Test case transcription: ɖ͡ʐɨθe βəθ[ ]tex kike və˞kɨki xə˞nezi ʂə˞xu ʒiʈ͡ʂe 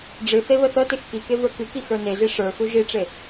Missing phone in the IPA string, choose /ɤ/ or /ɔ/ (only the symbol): ɤ